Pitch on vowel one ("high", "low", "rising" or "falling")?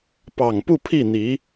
low